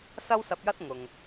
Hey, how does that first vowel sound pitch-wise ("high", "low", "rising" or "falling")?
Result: high